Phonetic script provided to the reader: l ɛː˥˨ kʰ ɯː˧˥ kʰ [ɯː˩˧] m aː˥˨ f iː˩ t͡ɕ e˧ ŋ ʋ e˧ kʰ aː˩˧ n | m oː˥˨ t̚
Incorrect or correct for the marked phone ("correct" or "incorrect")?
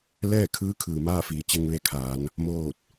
incorrect